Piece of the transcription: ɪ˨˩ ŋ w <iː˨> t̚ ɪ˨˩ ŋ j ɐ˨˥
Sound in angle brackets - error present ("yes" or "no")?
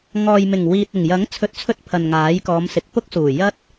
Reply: no